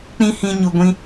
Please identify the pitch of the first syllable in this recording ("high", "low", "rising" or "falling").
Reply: high